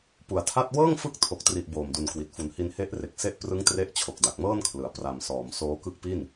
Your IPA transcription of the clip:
p u˨˩ a̯ tʰ a˥˩ t̚ w ɤː˥˩ ŋ f ɯ˦˥ k̚ tʰ o˨˩ k̚ t r i˨˩ ʔ b oː˨˩ m d u˨˩ n k w i˨˩ t̚ f u˨˩ n h i˧ n h e˦˥ ʔ r e˨˩ k̚ s e˥˩ ʔ p r ɯ˦˥ ŋ t r e˦˥ ʔ t͡ɕʰ o˨˩ k̚ d a˨˩ k̚ m ɤː˥˩ n kʰ l ɯ˩˦ a̯ p r a˨˩ m s ɔː˩˦ m s oː˦˥ k ɯ˦˥ k̚ p i˥˩ n

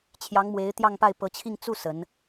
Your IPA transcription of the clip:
t͡ɕʰ j ɑ˧˥ ŋ m w e˧˥ ɪ̯ t̪ j ɑ˥˧ ŋ p a˥˩ ɪ̯ p ɤ˧˥ t͡ɕʰ i˥˧ ŋ t͡s u˥˩ s ə˧˥ n

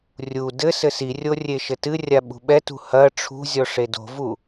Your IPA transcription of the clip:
rʲ u d ɘ s ɘ s i rʲ o rʲ e ʃ ɘ t ɨ rʲ a ɓ ṳ ɓ ɛ t ṳ h ɐ ʈ͡ʂʰ ṳ zʲ ɔ ʂ e d o̤ v u

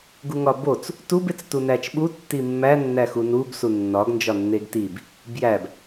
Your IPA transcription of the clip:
ɡ u ŋ ɒ b o t͡s | t u b e t͡s t u n æ t͡ʃ ɓ u tː i mː æ nː æ x u n u b s u nː ɒ ɡ n d͡ʒ ɒ nː e ɡ t i b | b j æ b

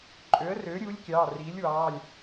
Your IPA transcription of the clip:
ǃʼ ø˩˥ ə̯ r øː˩˥ ɾʲ uː˩˥ lʲ kʲ ɑː˩˧˩ r iː˩˥ lʲ w ɑː˩˧˩ lʲ

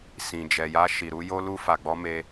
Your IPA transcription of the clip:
s ĩ˨ d͡ʒ ɛ˨ j a˧ ʃ i˨ ɾ u˧ j o˧ l u˧ f a˨ ɡ͡b ɔ˧ m e˧

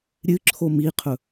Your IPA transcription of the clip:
ɾʲ ɨ ǁʰ o m i qʰ ɵ

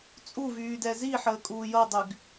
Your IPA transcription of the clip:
t͡sʼ u v yː d ɛ z i ħ əː kʼ uː j ɤ dˤ y ɡ

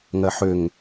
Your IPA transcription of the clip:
ŋ ɜ ħ ø ŋ

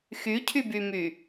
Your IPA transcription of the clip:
x y cʰ y b y m y

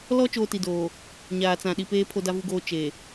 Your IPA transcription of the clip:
l ɔ˦ t͡ʃ oː˦ t i˨ d oː˨ | ɲ aː˨ t͡s ã˨ ɗ i˨ p eː˦ pʰ o˦ d a˦ v u˦ ɡ oː˦ t͡ʃ e˨

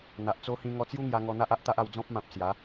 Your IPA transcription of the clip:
n̪ a˨ ʔ t͡s o˦ h ĩ˧ ŋ ɔ˧ t͡s j u˦ ŋ j a˧ ŋ ɔ˧ n̪ a˦ ʔ a˦ ʔ t̪ a˦ ʔ a˧ w d͡z ɔ̃˦ p̚ m ã˨ p̚ s j a˨˦

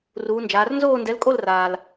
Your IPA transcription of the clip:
r uː˩˧ n d͡ʒ aː˩˧ r n z oː˥˧ n d ɛ˨˥ l kʼ o˥˧ l r aː˩ l

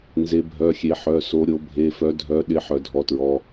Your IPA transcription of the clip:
n z e˨˦ bʱ œ˩˧˩ xʲ e˨˦ ħ œ˩˧˩ s o˨˦ ɾʲ o˨˦ bʱ e˩˧˩ f œ˨˦ dʱ œ˨˦ ɗ ɪ˨˦ ħ œ˨˦ dʱ ɔ˩˧˩ t ɹ ɔ˩˧˩

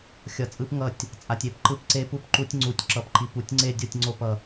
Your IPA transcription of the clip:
xʲ ʌ˨˦ t͡sʼ ɯ˦˥ p ŋ ʌ˥˩ tʲ | t͡sʼ a˨ tʲ e˥˩ p ǃ ɯ˥˩ p ǀ e˦˥ p u˥˩ p ǃ u˦˥ tʲ ŋ͡ǀ u˨˦ tʲ ǁ ʌ˨˦ p ǃ i˨ p u˨˦ tʲ ŋ͡ǀ e˥˩ dʲ o˥˩ tʲ ŋ͡ǀ o˥˩ p ʌ˨

